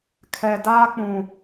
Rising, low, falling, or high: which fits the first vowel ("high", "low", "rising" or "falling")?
low